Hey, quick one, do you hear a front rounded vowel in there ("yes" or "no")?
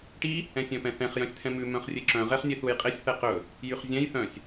yes